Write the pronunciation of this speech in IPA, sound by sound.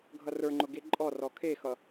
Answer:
ɡʱ ʌ r ə˞ ŋ͡ǃ ʊ ɡ e ǃʼ ɔ r ɔ kʰ e x ʌ

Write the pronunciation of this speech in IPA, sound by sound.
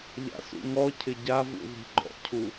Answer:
ʎ a̰ s ṵ ŋ ɔ cʰ ɪ ɟ a v ṵ ð i̤ ɡ͡ǃ ɔ̰ cʰ u

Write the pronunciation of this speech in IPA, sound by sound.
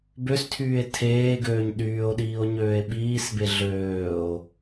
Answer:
b ø s tʰ yː e̯ tʰ eː ɡ øː ɲ ɗ yː o̯ ɗ iː o̯ ɲ øː e̯ ɓ iː s b e ɮ øː o̯

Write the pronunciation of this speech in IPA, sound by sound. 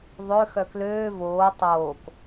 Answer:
ðˤ ø x œ k l øː v oː tˤ oː k

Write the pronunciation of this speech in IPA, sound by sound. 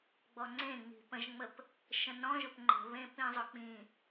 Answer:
ɡ͡b ɔ ŋ͡ǀ ẽ ŋ͡m i̤ p ə̃ ʒ ŋ͡m ə p | ʃ ə̃ n ɔ̃ ʒ ʊ p ŋ͡ǃ ə̤ β ẽ p ĩ zˤ ʊ k͡p ĩ

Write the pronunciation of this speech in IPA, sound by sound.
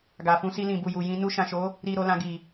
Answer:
ɡ a˨ f ũ˧ s i˧ l ĩ˨ b u˨ j u˨ j ĩ˧ n u˧ ʃ ã˨ ʃ o˨˦ | ɾ i˧ ɾ o˧ l ã˧ ɡ i˨

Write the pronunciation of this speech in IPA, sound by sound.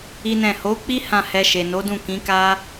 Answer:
i˦ n ɛ̃˦˨ h o˨˦ k͡p i˦ h ã˦˨ h ɛ˧ ʃ e˨ n o˨˦ d ũ˦˨ k ĩ˨˦ k a˦

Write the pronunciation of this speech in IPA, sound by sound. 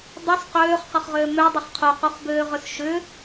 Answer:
dˤ ʏ s q øː χ q ə χ ʁ øː m ø dˤ ʏ χ qʰ u q u χ b øː ʁ ʏ s ʃ ʏ

